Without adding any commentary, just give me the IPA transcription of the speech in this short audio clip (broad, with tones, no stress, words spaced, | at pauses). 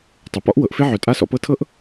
tˤu˩pɔ̰˥ʔ wɤ˨ʔfe˥ʕœ˨ tʼa˥sɔ̰˦pɤ˥ tʰɤ˥ʔ